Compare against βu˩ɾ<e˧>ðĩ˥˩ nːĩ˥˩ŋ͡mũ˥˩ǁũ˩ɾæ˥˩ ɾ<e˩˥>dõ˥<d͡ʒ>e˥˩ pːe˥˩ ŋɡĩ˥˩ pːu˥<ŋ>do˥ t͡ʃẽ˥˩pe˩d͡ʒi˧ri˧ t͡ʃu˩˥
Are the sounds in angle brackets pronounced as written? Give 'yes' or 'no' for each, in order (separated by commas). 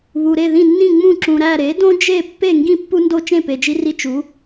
no, yes, yes, no